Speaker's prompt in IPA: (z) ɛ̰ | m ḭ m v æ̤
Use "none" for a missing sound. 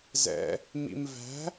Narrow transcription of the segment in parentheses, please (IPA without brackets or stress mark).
z